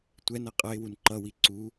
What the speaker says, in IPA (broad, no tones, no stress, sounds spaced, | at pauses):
tʷ ɛ n ʌ qʼ ʌ ɪ̯ w u n ǃ ʌ w i ǀ u